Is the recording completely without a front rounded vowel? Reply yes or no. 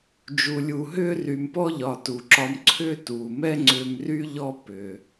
no